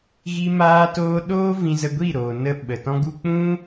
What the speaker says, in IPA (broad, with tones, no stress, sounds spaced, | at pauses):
ɣ i˧ m aː˧ t oː˧ ɗ oː˦ v ĩ˧ z ə˧ ɡʷ i˦˨ ɾ oː˨ n ə˧ ɓ ə˨ t ɔ̃˦ ɡ u˦ k͡p ũ˦